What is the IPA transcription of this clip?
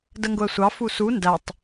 d ə ŋ ɡ ʊ ə̯ sʷ ɑ f u s u n d æ tˤ

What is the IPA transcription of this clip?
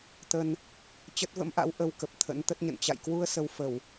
t̪ ə˧ n | t͡ɕ ə˦˥ t̚ v ə̰˧˥ m ʔ a̰˧˥ w ʔ ə˧ w k ə˨˩ p̚ t̪ʰ ə̰˧˥ n t̪ ə˦˥ t̚ ɲ ə̰˧˨ n t͡ɕ a̰˧˨ j k w u˧ ə̯ s ə˧ w f ə˧˩˨ w

